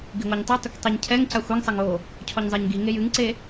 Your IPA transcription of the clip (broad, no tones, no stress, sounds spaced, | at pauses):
ɡ i ŋʷ a ɲ tˤ i tˤ ɘ kʷ tˤ e ɲ cʰ ɛ ŋ c a xʷ ɛ ŋ sˤ ɐ ŋ o | cʰ ɔ ɲ zˤ e ɲ ɡ i ŋ e j ɨ ŋ ǀ e